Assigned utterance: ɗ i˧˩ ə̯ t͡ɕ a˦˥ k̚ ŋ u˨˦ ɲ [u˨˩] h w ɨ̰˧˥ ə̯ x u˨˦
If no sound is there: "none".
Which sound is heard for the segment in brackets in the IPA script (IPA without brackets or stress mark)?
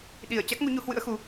u˨˦